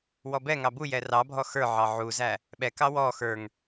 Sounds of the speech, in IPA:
wɔbɛŋɑ bujɛ rɑbʱɔ xə˞ ʕɑʕuzæ | ɓɛkɑ wɔ xə˞ŋ

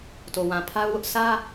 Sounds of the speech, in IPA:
to˨wã˨ pʰa˦ʊ̯wʊ˦ʔ sä˦

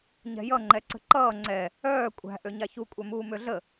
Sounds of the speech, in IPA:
ɲɛ̤jʌ ŋ͡ǃɛǀə̤ǃʌː ŋ͡ǀɛ | œː kʷʼæ̤ ʔøɲaçu kʷʼœmuːmøɮə

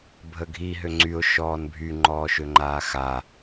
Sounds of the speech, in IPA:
bʱəɡʱi ɦøŋ͡ǀyʊ̯ ʃɔːnbʱy ŋ͡ǃɔːʃøŋ͡ǃaːxa

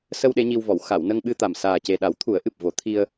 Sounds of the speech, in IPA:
sə˧w ɗe˧˥ɲi˧wvɔ˨˩˨w xa˨˩˨w nə˧ŋɓɨ˧t̪a˨˩m saː˨˩ce˨˩ɗa˨˩˦w t̪ʰu˨˩˦ə̯ʔɨ˨˩p̚ vo˨˩˦ t̪ʰi˧ə̯

